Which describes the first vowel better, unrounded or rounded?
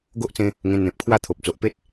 rounded